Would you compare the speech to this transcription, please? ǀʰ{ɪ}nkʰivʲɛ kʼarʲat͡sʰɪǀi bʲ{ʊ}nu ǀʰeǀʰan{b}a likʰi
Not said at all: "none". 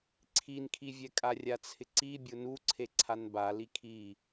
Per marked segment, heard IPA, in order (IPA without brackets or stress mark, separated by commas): i, ʊ, b